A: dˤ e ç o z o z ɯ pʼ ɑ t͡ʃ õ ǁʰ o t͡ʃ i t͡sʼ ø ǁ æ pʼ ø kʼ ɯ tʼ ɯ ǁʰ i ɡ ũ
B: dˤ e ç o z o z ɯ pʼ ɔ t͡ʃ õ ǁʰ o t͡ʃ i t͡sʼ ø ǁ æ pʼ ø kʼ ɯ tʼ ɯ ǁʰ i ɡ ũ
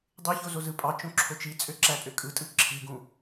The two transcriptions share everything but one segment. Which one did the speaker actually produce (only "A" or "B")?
A